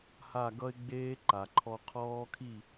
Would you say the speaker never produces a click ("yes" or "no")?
no